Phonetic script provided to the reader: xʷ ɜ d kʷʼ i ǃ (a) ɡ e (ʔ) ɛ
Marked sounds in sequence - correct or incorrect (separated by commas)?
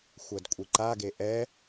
correct, correct